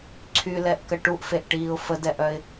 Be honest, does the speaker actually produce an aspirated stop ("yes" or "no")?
yes